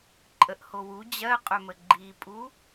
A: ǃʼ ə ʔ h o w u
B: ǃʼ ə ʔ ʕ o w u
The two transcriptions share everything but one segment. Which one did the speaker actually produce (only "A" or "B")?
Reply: A